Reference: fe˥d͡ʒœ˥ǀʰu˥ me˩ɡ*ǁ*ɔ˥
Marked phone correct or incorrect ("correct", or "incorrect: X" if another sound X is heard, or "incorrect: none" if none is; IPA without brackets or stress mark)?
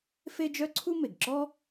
correct